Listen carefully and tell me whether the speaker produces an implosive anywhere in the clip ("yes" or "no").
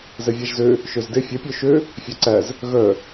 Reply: no